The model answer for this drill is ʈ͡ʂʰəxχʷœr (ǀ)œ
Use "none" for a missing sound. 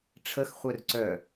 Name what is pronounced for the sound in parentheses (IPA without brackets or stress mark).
ǀ